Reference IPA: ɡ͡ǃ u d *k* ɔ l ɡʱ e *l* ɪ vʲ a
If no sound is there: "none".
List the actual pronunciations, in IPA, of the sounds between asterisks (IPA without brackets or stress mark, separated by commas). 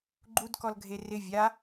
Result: k, r